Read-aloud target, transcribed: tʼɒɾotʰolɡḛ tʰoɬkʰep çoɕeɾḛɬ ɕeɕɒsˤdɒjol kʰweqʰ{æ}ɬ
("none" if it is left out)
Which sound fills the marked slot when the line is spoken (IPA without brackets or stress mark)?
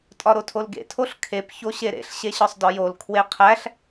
æ